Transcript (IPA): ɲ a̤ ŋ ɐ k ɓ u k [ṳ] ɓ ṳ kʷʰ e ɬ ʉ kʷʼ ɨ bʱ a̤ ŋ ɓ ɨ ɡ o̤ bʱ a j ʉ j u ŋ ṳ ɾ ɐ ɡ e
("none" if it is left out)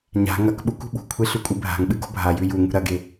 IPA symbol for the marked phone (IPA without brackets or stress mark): ṳ